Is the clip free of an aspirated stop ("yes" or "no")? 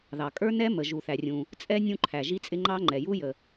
no